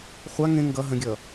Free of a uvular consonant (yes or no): no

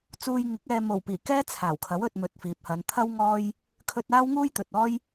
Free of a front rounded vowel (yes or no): yes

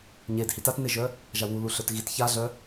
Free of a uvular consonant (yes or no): yes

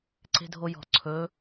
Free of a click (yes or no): no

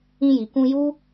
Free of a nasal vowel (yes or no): no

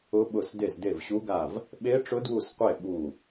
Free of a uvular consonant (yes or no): no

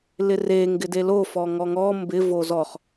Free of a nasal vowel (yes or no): yes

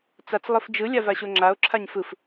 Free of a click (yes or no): no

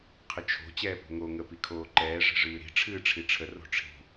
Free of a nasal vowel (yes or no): yes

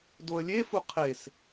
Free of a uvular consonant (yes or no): no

